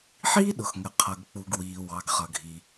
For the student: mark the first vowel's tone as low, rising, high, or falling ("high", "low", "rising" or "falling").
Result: high